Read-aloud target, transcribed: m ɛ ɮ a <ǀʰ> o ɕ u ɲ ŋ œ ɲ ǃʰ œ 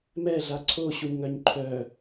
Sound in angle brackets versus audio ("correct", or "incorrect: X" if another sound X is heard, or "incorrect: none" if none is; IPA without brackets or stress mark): correct